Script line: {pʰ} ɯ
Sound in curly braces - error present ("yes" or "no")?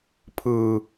no